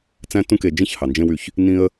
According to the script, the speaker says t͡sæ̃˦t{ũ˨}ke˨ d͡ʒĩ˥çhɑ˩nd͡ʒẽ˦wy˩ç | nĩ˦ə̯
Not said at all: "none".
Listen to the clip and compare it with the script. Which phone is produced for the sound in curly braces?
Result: ũ˦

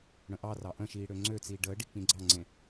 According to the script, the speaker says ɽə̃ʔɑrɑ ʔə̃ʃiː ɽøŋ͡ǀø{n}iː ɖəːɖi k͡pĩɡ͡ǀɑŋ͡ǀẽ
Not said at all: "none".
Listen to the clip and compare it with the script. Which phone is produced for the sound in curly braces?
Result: t͡s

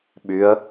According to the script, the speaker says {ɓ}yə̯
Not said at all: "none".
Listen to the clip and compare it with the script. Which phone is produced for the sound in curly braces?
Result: ɓ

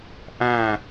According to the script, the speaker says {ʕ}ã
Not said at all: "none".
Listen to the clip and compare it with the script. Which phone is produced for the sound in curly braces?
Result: ʔ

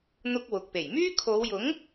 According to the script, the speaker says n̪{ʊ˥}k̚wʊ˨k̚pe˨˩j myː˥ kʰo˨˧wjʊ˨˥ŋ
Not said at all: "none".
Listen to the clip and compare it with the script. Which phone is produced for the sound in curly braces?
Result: ʊ˥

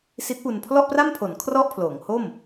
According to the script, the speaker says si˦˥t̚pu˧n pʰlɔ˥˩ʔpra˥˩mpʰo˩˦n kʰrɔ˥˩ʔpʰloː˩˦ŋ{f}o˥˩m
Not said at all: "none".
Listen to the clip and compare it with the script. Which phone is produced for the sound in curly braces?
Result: h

